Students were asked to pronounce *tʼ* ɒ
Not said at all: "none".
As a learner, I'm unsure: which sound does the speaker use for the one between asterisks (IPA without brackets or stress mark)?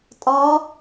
tʼ